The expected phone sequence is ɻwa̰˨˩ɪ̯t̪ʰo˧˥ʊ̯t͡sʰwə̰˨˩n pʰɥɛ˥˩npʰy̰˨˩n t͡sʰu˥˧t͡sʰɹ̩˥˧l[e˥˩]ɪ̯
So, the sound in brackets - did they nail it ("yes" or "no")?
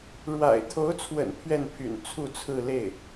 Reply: yes